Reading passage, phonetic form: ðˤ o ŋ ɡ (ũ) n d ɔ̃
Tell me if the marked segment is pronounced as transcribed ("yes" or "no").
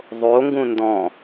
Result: yes